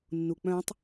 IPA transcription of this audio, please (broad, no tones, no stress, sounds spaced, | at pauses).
nː u k͡p œ̃ tˤ